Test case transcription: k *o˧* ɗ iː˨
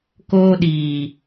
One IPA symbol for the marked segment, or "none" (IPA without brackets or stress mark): oː˧